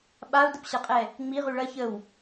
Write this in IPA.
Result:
ɓ a u̯ d ə p ɕ ɐ qʼ ɛ | ŋ͡m i ʁ y ɭ ɐ ç ə w

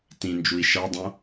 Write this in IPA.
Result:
t ĩ n d͡ʒ u i̯ ʃ ʌ dˤ õ

